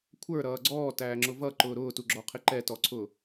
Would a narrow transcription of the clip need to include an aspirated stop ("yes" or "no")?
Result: yes